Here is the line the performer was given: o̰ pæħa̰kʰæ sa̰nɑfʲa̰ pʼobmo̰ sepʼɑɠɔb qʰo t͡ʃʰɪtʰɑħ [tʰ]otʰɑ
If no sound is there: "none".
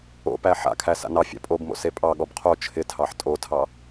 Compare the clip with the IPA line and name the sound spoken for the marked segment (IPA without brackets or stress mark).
tʼ